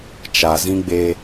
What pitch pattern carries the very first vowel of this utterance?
low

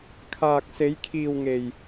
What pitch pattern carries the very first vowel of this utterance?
low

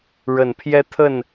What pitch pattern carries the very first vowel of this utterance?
low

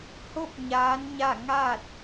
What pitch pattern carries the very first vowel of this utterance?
falling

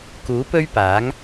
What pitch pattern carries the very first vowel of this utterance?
rising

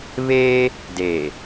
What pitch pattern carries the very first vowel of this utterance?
high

